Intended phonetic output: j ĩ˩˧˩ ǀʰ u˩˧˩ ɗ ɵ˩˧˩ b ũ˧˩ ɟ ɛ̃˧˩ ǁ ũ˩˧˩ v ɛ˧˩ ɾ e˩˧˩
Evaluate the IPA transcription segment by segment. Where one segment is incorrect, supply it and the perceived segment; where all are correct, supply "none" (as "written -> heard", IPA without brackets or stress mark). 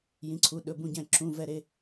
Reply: none